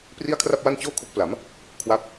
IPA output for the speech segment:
p r i˥˩ a̯ kʰ r a˥˩ p̚ w a˥˩ n t͡ɕ oː˥˩ kʰ o˦˥ k̚ p l a˩˦ m | kʰ w a˦˥ p̚

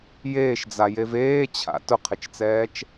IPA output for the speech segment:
j eː ʃ d͡z a j e v eː t͡ɕʰ a̰ t ʊ qʰ ɪ t͡ʃ t͡s ɛː t͡ʃ

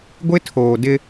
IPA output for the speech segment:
ɡʷ ɪ˦ tʰ oː˨ d ɪ˦

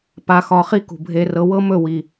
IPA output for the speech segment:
p a˧ x ɒ˧ χ i˦ k ṳ˨ bʱ e˧ r ɤ˧ w ɤ˦ m ɵ˦˨ w i˨

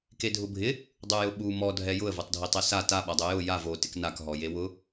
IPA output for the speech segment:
k e dʱ ʊ bʱ ɪ | dˤ u j ʊ ɓ u m ɔ dʱ ɛ j ʊ ə̯ v o tˤ dʱ i tˤ ɛ s a t a ɓ a dˤ ʊ j ʊ j a v o t ɪ k n a k ɦ ɔ j e w ʊ

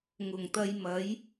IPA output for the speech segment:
ŋ ʊ˨˩ ŋ t̪ ɐ˧ j m ɐ˨˥ j

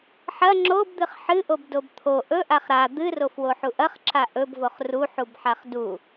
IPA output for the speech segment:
ħ ɐ ŋ͡ǁ o b d̪ ɨ χ ħ ɨ ʔ o b d o b t̪ʰ o ʔ ɵ ʔ a χ ɾ a d̪ ɨ r o f w o ħ u ʔ ɐ χ ǁ a ʔ ɵ b v o χ r u ħ u b ħ a χ d u

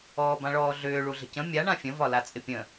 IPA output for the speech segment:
ɔː b ã ɭ ɔː ɮ ʏː ɭ u ɮ ə̤ c ə̃ mʲ a ɳ ã fʲ ə̃ v ɒ l a t͡sʼ ɪ pʲ ə̃

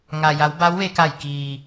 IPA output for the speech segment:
ŋ a˩ j a˩˧ w b a˧˥ w ʋ e˧ k a˧˩ j k iː˩

